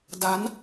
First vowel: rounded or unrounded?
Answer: unrounded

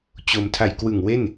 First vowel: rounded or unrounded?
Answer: rounded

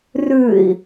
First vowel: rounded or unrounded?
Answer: rounded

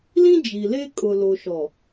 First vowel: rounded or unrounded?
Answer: unrounded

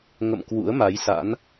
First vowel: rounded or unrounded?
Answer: unrounded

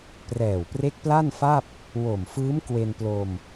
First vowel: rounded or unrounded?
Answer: unrounded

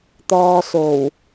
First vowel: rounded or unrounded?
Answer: rounded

